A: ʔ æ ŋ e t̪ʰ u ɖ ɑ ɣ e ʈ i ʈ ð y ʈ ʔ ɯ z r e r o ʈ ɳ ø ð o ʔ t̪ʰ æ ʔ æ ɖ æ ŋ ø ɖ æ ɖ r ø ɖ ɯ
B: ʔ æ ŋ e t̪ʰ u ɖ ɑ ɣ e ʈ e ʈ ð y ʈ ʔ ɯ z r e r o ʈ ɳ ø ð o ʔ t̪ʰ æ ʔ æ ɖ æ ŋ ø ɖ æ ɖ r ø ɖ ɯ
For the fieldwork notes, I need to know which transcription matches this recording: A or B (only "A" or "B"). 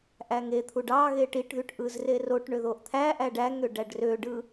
A